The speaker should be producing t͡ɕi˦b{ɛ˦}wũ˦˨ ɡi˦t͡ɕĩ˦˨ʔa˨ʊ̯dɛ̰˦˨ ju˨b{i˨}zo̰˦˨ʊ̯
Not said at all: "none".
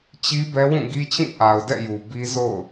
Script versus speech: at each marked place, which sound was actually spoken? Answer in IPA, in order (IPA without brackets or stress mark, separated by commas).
ɛ˦, i˦